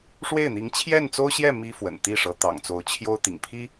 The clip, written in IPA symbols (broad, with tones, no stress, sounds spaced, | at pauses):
ʂ w e˥˩ ɪ̯ n̪ i˧˥ ŋ t͡ɕʰ j ɛ˥˩ n t͡s o˥ ʊ̯ ɕ j ɛ˥˩ m i˥ f w ə̰˨˩ n t̪ i˥˩ ʂ ɤ˧˥ t̪ ɑ̰˨˩ ŋ t͡s o˧˥ ʊ̯ t͡ɕʰ j o˥ ʊ̯ t̪ ḭ˨˩ ŋ pʰ i˥